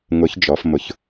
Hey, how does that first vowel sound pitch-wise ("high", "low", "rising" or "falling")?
rising